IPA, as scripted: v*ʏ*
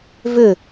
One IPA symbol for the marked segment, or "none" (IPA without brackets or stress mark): ʏ